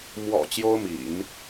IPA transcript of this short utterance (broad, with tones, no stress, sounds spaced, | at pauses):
m w ɔ̰˨˩ t͡ɕ j o˥ ʊ̯ m ḭ˨˩˦ n